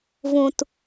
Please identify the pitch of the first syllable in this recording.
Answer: low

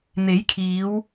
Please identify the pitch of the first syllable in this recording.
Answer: rising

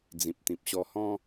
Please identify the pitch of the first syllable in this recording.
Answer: low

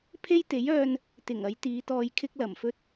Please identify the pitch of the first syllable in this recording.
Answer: high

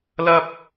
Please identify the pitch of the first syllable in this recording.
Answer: high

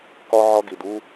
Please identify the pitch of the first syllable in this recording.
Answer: high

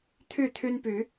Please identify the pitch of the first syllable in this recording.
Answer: falling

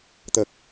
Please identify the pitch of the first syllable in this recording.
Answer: low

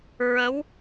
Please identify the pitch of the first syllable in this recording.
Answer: rising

